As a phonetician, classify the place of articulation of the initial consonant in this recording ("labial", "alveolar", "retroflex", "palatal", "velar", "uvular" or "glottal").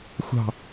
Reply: velar